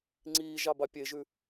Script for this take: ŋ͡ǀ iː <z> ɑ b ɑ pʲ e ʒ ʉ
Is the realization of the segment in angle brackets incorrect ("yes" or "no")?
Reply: yes